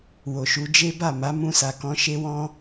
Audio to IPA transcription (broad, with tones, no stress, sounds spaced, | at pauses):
w o˨ ʃ u˨˦ d͡ʒ e˦ b a˦˨ m a˨˦ m ũ˧ s a˨ k ɔ̃˧ ʃ e˧ w ɔ̃˧